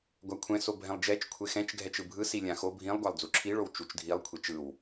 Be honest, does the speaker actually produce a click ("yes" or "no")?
yes